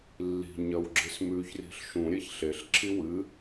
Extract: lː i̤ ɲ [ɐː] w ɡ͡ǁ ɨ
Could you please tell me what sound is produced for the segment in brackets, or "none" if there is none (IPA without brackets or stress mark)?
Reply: ɐ